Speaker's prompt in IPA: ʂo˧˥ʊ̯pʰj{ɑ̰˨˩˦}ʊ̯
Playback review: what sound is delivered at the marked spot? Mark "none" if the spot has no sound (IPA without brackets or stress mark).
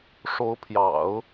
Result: ɑ̰˨˩˦